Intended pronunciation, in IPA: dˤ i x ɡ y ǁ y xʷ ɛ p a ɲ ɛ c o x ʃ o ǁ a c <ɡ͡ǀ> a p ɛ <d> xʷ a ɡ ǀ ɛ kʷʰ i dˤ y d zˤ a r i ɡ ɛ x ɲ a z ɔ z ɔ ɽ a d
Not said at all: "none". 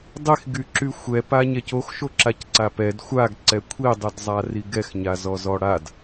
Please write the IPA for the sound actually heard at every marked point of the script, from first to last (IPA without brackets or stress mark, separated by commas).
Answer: ǀ, d